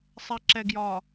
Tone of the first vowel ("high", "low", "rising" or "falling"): low